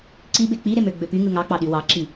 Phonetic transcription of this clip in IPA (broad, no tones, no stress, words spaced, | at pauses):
ǀi bek͡piɾe møɡ͡bøpyŋɯ ŋɑk͡pɑ ɗywɑǁi